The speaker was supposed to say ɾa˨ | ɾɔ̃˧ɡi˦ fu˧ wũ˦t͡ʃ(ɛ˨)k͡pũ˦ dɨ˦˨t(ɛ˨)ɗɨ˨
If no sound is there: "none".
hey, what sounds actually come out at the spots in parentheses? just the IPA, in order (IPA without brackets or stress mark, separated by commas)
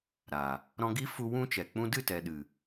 ɛ˨, ɛ˨